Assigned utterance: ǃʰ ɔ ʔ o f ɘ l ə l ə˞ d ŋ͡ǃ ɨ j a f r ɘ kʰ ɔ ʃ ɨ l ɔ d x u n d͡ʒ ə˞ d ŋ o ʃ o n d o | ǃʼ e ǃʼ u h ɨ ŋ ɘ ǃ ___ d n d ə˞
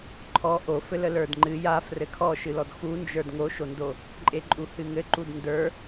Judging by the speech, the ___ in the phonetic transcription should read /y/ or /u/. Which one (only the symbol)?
u